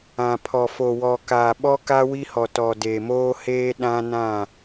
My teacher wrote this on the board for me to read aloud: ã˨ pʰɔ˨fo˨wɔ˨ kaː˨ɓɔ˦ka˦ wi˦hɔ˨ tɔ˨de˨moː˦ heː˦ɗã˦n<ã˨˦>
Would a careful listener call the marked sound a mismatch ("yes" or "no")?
yes